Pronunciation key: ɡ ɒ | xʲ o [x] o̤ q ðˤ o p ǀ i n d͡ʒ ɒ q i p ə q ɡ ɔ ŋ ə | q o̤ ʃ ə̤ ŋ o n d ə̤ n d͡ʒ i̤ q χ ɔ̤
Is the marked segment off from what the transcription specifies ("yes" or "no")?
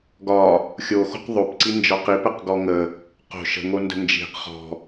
no